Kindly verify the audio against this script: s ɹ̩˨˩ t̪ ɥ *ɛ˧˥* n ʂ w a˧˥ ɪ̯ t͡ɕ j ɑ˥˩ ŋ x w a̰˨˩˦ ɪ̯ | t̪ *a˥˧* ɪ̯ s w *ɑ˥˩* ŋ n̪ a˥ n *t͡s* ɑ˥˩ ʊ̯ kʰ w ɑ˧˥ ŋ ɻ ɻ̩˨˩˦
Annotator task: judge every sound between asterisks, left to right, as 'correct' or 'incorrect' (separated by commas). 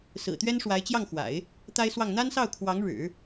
incorrect, incorrect, correct, incorrect